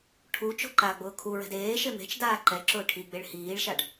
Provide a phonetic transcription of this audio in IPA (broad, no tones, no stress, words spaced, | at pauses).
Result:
ʈʰu t͡ʃo̤ǃaɡ͡bʊː kʰuɹɛ̤d eː ʃeme̤t͡ʃdaː ǃɛǁʊː ʈʰiɡ͡beɭ hiːɭʃaɖ